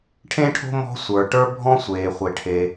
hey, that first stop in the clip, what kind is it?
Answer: aspirated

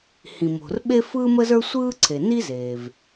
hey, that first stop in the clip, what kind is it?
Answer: implosive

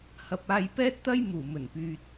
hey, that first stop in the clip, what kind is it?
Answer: plain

